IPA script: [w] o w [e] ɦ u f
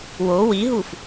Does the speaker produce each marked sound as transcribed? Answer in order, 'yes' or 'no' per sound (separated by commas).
yes, no